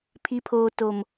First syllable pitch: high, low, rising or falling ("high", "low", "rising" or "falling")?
low